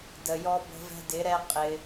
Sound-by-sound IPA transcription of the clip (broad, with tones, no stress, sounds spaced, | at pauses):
d ə˨ j ɔ˧ b ə̤˧ v ɛ̤˧ d ɪ˨˦ ɾ ɛ˦ qʼ ɪ˧